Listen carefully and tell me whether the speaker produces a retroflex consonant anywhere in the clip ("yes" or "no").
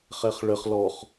yes